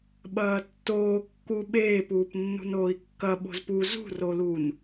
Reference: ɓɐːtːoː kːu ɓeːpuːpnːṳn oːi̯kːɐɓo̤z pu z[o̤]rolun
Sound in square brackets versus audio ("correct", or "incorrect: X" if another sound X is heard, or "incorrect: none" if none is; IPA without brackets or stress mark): incorrect: ṳ